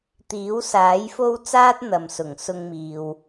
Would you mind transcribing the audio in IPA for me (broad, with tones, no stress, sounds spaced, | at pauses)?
t̪ iː˨˥ w s aː˨˥ j f o˥ w t͡s aː˥ t̚ n̪ ɐ˨ m s ʊ˨˩ ŋ s ʊ˧ ŋ m iː˨ w